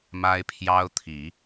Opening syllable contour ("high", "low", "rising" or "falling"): high